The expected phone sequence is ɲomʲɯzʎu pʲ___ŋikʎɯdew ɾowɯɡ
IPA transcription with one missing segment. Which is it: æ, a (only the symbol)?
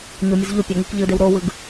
a